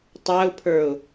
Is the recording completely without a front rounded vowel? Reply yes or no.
yes